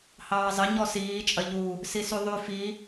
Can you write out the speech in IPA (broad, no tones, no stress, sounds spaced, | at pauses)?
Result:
h ɑː zˤ ɘ ɲ ɔ s iː t͡ʃʼ ɐ ʎ u | s i s y ðˤ y f i